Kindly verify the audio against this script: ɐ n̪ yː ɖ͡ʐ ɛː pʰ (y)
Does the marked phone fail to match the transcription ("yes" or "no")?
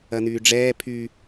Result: no